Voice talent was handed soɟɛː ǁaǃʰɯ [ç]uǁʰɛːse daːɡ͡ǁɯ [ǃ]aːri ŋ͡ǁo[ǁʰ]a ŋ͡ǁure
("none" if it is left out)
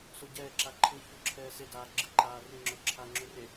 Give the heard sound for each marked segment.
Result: ç, ǃ, ǁʰ

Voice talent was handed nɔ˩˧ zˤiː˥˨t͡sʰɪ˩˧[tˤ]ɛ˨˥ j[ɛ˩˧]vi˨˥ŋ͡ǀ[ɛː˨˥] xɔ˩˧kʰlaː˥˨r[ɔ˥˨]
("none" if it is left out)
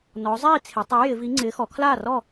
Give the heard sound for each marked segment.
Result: tˤ, ɪ˩˧, ɪː˨˥, ɔ˥˨

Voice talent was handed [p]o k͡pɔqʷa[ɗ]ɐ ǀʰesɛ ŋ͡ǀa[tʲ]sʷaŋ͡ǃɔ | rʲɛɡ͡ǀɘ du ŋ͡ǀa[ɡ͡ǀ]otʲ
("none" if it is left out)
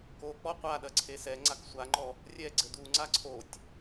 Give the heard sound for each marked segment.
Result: k, ɗ, k, ǀʰ

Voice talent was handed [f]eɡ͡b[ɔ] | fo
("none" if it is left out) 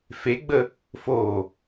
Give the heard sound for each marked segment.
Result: f, ə

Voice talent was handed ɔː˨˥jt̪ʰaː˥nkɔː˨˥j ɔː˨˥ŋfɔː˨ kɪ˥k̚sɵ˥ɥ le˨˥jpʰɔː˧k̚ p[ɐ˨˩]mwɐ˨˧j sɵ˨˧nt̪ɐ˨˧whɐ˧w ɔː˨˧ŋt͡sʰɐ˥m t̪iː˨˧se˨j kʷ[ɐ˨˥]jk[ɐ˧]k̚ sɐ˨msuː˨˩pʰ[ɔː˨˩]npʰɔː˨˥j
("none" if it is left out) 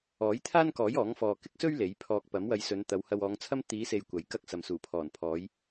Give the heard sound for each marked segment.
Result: ɐ˨˥, ɐ˨˥, ɐ˥, ɔː˨˩

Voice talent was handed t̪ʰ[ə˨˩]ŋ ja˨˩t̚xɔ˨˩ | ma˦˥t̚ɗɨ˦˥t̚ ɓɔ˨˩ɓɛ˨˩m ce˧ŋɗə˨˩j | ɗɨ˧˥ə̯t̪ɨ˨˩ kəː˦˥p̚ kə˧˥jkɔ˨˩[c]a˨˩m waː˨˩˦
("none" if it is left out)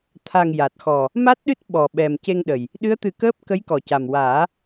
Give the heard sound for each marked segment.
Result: a˨˩, c

